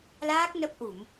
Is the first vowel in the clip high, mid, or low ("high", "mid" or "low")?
low